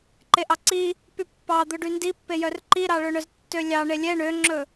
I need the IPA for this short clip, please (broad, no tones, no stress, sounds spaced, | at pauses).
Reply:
ǃ e ʔ ɑ ǀ i | p y pː ɑ d̪ ɵ ɖ y n d i pː e j œ r ǃ i ɾ ɑ ɭ ɵ ɳ œ z tː ø lʲ ɑ ɳ e lʲ ɛ ɳ ø ŋ͡ǁ ɵ